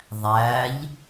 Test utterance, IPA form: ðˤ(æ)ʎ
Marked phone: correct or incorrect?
correct